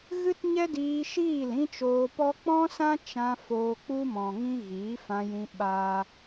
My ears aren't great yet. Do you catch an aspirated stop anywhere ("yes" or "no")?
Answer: no